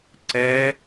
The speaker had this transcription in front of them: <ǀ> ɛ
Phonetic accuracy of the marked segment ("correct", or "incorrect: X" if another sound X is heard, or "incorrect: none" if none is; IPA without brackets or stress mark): correct